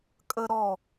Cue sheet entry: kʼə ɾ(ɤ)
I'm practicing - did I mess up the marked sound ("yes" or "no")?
yes